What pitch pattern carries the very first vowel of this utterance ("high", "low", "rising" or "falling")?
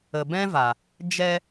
low